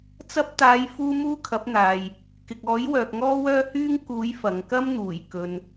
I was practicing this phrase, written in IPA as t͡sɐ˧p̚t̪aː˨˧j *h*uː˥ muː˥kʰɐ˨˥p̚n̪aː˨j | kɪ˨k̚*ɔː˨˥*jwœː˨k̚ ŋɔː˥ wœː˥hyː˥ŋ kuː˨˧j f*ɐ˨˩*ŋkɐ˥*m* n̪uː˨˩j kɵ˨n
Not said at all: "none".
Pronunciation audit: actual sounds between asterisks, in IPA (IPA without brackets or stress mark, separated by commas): f, ɔː˨˥, ɐ˨, m